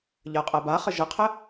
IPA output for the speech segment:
ʎ ɜ qʼ ɜ b a χ ə ʒ ə qʰ ə

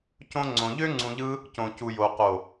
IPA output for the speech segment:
c õ˧ ŋ͡ǀ õ˨ ʎ ø˦ ŋ͡ǀ ũ˧ ʎ ɯ˦ | c õ˨ c u˨ j o˨ q o˨

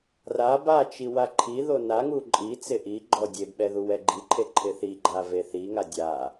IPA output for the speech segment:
r a b a t͡ʃ i w a ǃʰ i ð o n a ŋ u ǃʼ i t͡s ɪ ʔ i ɡ͡ǃ ɔ dʲ e b ɓ ɛ ð u w ɛ ɡ͡ǃ i ǃʰ e ǃʰ ɪ θ i ɡ͡ǃ a v e θ i ŋ a dʲ a

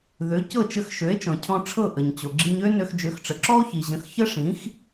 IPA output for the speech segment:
ð ø˩˥ c ɤ˥˩ t͡ʃ ə˧ x ʃ ø˩˥ e̯ t͡ʃ ɔ̃˩ cʰ ɔ̃˧ ʈ͡ʂʰ ɤ˥˩ ʔ ə˩ ɲ t͡ɕ o˩ ɡ͡ǁ i˧ ɲ ø˥ n ø˧ x d͡ʒ ø˩˥ x ʈ͡ʂ ə˩ ǁ ɔ˥ o̯ ç i˩ ʑ ə̃˩˥ x ç ə˥ ʂ ĩ˩˥ x

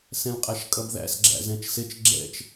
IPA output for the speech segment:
s ɛ̃ l qʼ æ ʃ kʼ ʌ b ð æ̰ s ɡ͡ǁ æ̰ z ɛ̃ t͡ʃ s ɪ t͡ʃ ɡ͡ǁ ɛ̰ t͡ʃ

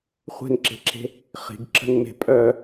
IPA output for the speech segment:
χʷ e̤ n ǁ e̤ ǁ e̤ | χ i̤ ɡ ǁ ə̤ n m e̤ pʼ œ

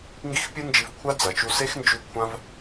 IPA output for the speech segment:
ŋ ɡ i˦ x pʲ ɨ˦ n d͡ʒ i˧ v kʷʰ a˦ d͡z ɐ˨ t͡ʃ u˧ s e˦ x n d͡ʒ ʉ˧ kʷʰ ã˦ v

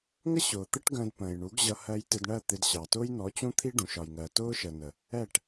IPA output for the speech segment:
ŋ ə˦ ɕ ʊː˨ t̪ ɜ˦ ʈ ɡ ə̃ː˧ d p ə̃ː˨ j ɳ u˨˦ ɡ ʑ ʌ˧ h ɜ˧ j t ɪ˧ d ɳ ɜ˦˨ t̪ ɪ˧ d ɕ ɑ˨ t ʊː˦ j n ɔ˨˦ t͡ɕ ũ˦ t̪ʰ i˦ ɖ ũ˨ ʃ ɒ˨ j ŋ ɜ˨ t ʊː˦ ʃ ə˨ n ə˨ | ɛ˦˨ ʈ

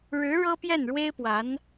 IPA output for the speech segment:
ɻ ɻ̩˧˥ ɻ ɤ˥ p j ɛ˥˩ n ɻ w e˥ ɪ̯ p w a˧˥ n

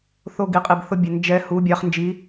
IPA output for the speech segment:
θ o˧ ɡ i˩˧ qʼ i˩ b θ ʊ˧ bʲ ɛ˩ n d͡ʒ ɛ˩˧ h u˩˧ bʲ ɑ˩˧ χ n d͡ʒ i˩˧

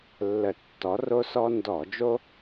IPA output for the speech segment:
lː ə˧˩˧ tː ɔ˨˥ r o˦ s ɔ˦ n d ɔ˧˩˧ d͡ʒ o˦

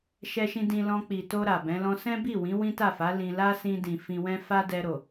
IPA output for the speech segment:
ʃ ɛ˧ ʃ ĩ˧ d ĩ˧ l ɔ̃˧ k͡p i˨ t o˧ ɾ a˨ b ɛ̃˨˦ l ɔ̃˦ s ɛ̃˦ b i˦˨ w ĩ˨˦ w ĩ˦ t a˦˨ f a˨˦ l ĩ˧ l a˦ s ĩ˧ d ĩ˨ f ĩ˧ w ɛ̃˦ f a˦ d ɛ˧ ɾ o˨

